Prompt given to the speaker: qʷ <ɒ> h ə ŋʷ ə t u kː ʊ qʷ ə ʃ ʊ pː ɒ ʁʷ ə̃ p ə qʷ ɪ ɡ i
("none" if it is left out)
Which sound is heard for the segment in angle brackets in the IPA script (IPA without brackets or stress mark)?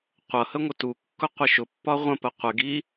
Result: ʌ